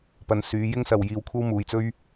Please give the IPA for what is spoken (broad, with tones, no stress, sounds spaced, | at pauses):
p ɐ˨˧ n s yː˨˧ j ɪ˥ ŋ s ɐ˨ w j iː˧ w kʷʰ ɐ˥ w m uː˨ j t͡s ɵ˥ ɥ